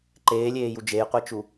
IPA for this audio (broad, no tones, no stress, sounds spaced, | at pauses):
ǃ eː lʲ eː j u d͡ʒ e j qʷ i t͡ʃ u